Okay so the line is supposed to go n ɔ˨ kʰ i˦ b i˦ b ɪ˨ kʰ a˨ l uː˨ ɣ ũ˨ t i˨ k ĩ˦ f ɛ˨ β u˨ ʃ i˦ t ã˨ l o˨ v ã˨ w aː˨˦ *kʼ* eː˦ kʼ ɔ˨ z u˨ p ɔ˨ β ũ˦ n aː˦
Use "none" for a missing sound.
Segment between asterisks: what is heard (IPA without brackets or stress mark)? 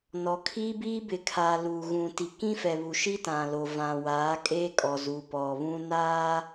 kʼ